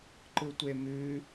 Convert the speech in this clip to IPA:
ǃɯtʷemʉ

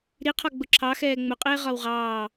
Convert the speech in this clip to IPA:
ɾiqʰɒ ɡ͡bʊǁʰɑxɛː ŋ͡mʊqʼɪː ʁɒwʁɑː

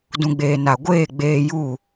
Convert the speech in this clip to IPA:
dũ˨ɡ͡beː˨ na˨ɡʷeː˦˨ɡ͡beː˧ju˦˨

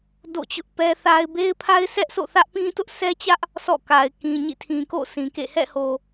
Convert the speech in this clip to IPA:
do̰˦˨t͡ɕʊ˦ʔpɛ˦θa˦ɪ̯ be˦ɪ̯pʰa˦ɪ̯sʰɛ˦ʔ sʰo̰˦˨θä˦ʔpĩ˦ tʊ˦ʔsʰɛ˦t͡ɕä˦ʔ | sʰɔ̰˦˨ka˨ɪ̯ kĩ˨ɲḭ˦˨tʰĩ˨ko̰˦˨ sʰĩ˨kḛ˦˨ hɛ̰˦˨ho˨

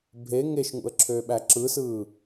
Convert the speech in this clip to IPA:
bʱe ŋeʃŋṵə̯ǁʰøːɓæ ǁɯsɯː

